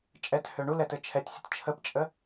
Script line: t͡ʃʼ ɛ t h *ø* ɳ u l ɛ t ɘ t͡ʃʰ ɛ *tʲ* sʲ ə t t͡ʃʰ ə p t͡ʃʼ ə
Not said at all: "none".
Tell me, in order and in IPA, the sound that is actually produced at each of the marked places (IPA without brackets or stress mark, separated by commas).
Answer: ø, tʲ